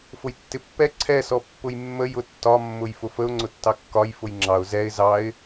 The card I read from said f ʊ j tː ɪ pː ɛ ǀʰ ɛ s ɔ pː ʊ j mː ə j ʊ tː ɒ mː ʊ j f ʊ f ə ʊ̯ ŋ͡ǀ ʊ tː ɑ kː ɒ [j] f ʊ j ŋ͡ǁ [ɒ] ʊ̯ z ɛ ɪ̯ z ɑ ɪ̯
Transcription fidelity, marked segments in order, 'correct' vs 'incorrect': correct, incorrect: ɑ

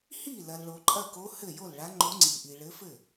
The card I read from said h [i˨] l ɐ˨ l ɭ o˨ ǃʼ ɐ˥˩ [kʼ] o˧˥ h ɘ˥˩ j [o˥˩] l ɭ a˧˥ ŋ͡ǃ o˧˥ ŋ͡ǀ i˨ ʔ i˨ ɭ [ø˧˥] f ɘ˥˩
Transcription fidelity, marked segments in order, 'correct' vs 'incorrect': incorrect: i˥˩, incorrect: k, correct, incorrect: ɘ˧˥

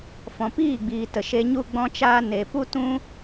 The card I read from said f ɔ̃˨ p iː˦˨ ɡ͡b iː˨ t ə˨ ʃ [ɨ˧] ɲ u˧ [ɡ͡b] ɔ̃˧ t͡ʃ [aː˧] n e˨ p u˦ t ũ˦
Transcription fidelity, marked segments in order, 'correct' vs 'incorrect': incorrect: e˧, correct, correct

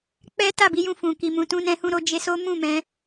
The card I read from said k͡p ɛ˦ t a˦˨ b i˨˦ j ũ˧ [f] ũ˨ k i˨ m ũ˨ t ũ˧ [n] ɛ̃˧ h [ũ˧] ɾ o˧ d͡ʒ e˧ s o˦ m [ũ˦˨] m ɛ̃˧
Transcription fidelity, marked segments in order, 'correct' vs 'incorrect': correct, correct, correct, correct

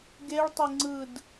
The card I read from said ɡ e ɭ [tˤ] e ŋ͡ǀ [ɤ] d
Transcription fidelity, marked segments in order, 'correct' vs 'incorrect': correct, incorrect: ɯ

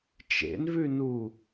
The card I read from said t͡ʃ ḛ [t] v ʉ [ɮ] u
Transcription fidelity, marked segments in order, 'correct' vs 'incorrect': incorrect: n, incorrect: n

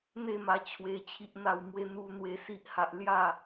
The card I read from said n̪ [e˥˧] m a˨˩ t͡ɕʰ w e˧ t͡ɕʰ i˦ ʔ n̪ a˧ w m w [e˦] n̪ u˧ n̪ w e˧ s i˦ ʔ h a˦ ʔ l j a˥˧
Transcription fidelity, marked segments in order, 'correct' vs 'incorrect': correct, correct

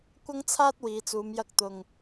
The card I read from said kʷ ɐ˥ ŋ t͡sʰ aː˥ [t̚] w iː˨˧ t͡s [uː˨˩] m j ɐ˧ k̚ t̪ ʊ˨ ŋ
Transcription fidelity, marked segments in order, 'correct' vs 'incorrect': correct, incorrect: uː˨˧

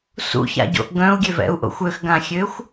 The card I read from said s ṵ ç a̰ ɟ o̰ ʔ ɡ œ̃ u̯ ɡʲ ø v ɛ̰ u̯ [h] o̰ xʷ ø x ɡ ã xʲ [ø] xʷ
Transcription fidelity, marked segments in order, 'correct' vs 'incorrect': incorrect: ʔ, correct

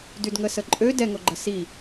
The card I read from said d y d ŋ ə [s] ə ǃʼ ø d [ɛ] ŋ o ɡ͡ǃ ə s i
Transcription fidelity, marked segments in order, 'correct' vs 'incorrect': correct, correct

